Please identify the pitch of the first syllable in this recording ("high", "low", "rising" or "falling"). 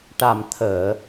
low